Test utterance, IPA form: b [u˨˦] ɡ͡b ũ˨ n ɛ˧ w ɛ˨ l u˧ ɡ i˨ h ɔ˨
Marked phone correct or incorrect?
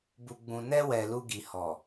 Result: incorrect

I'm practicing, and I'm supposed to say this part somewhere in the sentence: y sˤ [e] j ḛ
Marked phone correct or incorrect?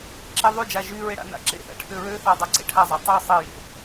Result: correct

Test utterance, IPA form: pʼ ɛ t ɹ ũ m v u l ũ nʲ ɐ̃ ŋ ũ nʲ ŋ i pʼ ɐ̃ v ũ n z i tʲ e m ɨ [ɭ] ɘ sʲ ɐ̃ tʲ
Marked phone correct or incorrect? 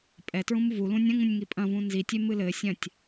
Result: incorrect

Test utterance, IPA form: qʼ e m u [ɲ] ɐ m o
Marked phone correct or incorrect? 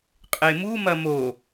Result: incorrect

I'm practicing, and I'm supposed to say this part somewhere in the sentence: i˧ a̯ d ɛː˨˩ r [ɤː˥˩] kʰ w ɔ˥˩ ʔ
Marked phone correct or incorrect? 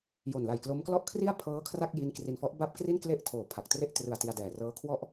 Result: incorrect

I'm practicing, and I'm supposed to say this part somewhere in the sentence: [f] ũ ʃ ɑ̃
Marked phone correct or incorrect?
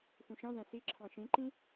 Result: correct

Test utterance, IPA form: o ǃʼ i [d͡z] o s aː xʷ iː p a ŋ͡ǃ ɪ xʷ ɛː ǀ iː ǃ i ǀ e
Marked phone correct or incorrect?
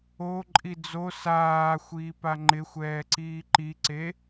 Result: correct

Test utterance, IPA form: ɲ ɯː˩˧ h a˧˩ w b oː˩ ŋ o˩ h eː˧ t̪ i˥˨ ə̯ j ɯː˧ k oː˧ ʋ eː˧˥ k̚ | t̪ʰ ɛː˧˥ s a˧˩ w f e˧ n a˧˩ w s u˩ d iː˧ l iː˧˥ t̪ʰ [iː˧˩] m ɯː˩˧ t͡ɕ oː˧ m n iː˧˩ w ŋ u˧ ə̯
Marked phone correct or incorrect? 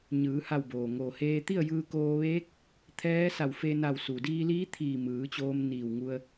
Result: correct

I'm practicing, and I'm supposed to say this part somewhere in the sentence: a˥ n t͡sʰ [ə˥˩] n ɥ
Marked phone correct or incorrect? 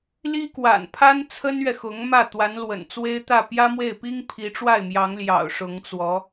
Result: incorrect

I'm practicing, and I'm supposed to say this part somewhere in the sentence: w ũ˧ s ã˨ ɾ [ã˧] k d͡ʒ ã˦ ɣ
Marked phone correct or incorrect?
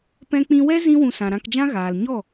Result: correct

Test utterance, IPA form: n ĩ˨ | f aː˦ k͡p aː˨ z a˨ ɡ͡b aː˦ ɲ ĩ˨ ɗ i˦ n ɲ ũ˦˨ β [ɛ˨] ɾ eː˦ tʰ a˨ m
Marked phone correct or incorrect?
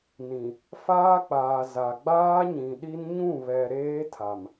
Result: correct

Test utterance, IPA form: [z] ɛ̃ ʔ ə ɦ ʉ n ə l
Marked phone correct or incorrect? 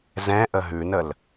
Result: correct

